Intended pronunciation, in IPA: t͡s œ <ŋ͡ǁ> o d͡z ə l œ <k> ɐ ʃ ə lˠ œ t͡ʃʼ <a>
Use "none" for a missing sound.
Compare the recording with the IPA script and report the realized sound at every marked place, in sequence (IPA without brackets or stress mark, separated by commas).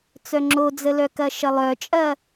ŋ͡ǁ, k, ɐ